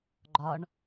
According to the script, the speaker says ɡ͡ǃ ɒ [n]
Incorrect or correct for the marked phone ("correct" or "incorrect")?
incorrect